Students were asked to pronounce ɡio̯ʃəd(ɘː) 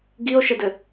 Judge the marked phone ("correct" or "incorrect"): incorrect